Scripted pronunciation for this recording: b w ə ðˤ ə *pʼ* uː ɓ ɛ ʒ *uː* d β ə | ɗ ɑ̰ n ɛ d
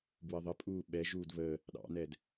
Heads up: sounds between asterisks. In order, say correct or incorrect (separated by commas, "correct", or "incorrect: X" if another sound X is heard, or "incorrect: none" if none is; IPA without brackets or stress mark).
correct, correct